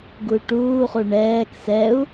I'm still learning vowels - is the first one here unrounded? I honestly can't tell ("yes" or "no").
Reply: no